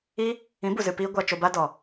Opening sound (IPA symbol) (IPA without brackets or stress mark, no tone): iː